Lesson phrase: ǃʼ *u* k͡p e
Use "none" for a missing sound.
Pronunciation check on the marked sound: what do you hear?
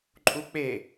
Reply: u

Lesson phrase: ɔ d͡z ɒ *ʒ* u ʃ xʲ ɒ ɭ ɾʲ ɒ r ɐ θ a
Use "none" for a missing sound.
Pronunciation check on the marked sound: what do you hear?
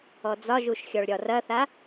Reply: ʒ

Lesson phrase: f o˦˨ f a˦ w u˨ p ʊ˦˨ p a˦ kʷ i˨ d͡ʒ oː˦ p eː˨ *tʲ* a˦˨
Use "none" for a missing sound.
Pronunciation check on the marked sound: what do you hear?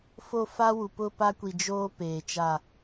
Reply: t͡ʃ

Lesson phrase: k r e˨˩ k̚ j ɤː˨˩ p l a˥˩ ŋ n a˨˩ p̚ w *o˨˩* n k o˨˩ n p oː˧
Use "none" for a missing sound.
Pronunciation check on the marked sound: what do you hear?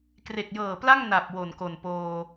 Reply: o˨˩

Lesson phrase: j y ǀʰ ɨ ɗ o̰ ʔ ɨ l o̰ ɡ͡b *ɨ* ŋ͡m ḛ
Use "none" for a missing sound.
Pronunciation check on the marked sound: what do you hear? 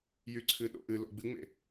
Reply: ɨ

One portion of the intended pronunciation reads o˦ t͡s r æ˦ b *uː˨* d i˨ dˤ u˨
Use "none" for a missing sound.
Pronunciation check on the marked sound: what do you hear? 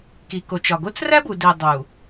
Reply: u˨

